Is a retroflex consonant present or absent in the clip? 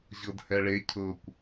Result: present